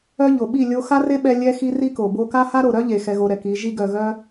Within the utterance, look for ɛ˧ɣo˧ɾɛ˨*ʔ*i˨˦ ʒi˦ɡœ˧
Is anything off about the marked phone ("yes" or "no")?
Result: yes